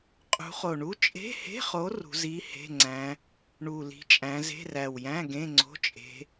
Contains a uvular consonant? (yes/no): yes